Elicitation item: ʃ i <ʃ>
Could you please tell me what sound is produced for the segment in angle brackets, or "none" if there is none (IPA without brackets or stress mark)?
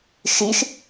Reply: ʃ